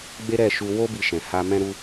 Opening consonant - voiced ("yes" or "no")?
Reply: yes